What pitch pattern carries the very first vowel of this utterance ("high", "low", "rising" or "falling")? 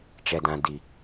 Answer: low